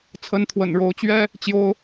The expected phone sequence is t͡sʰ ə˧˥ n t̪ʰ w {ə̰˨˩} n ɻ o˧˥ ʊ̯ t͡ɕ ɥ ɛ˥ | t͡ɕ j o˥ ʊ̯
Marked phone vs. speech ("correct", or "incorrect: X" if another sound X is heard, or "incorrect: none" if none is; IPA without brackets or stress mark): correct